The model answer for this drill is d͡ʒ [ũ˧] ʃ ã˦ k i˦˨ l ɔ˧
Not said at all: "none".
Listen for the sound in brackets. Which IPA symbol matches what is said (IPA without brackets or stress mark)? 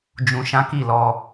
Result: ũ˧